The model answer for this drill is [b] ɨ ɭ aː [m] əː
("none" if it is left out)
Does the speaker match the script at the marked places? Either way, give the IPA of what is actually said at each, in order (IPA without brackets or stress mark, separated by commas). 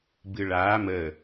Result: b, m